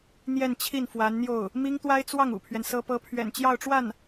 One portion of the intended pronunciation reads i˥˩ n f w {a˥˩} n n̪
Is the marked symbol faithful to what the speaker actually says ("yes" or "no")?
no